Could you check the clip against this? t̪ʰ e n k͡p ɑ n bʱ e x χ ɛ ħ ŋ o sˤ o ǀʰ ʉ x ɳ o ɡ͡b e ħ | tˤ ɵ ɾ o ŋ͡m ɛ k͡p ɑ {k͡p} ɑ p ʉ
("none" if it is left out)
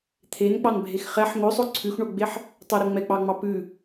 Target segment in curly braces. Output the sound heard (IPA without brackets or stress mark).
ŋ͡m